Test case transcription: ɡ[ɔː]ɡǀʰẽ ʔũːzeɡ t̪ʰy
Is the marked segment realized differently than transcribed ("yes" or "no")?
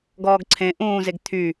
no